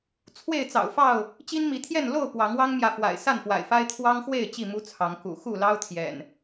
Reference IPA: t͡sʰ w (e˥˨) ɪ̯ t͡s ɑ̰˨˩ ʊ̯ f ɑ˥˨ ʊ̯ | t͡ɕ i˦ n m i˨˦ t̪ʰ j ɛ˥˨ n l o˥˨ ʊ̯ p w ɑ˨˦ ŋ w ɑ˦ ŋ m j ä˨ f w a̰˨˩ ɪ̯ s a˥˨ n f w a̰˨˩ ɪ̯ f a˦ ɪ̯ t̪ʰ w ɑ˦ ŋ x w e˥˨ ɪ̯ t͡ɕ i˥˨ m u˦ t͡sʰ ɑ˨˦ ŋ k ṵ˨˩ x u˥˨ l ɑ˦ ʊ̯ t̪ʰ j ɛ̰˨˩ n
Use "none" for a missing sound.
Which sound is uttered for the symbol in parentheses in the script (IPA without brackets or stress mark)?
e˥˨